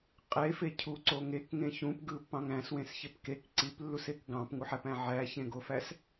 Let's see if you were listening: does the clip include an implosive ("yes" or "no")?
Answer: no